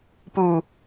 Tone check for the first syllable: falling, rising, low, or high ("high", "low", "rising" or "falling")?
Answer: low